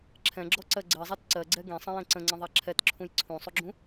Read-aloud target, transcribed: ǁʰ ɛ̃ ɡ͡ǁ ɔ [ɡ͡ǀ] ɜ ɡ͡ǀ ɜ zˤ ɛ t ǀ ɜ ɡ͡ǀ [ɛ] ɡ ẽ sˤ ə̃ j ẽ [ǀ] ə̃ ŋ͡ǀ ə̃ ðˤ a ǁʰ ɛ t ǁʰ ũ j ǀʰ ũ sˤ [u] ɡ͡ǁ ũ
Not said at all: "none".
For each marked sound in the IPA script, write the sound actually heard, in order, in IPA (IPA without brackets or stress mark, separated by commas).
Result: ǀ, ɛ, ǀ, u